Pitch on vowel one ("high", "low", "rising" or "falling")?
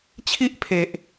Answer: high